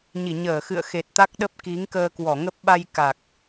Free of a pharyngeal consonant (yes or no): yes